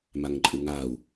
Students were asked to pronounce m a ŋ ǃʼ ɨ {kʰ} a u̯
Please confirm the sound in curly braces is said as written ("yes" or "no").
no